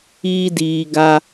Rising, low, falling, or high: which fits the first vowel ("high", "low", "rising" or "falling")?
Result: high